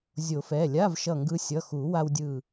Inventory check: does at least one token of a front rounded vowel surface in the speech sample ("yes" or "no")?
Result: no